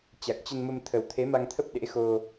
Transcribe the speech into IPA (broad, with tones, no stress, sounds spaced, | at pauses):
t͡ɕ a˨˩ k̚ t͡ɕ ə˧ n m ə˧ m t̪ʰ ə˨˩ w t̪ʰ e˨˦ m a˧ ŋ t̪ʰ ə˦˥ p̚ ɗ ḛ˧˥ x o˧